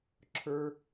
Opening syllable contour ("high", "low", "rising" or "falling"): high